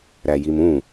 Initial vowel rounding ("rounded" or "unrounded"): unrounded